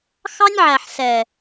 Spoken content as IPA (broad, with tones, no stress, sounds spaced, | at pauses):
x ɑ˦ nʲ ʕ æ˨ ħ s ɛ˨